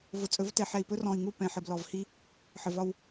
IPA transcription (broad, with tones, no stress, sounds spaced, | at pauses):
v ʊ˨ t͡sʼ ɵ˨˦ v t ɛ˨ ħ ɛ˨ i̯ p ɵ˦ r ɔ̃˨ i̯ ŋ u˦˨ p ɛ̃˨ ħ ə˨ b l ɔ˨ v h i˦ | ħ ə˨ v ɒ˦ w